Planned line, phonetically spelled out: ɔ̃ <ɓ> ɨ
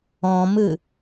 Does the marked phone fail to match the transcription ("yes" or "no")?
yes